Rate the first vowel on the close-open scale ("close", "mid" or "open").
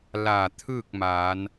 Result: open